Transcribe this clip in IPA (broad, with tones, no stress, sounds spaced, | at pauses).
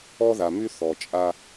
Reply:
ɔ˦ ð a˨ m y˦ θ ɔ˨ t͡ʃʼ a˦